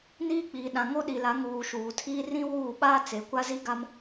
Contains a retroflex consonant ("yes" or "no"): no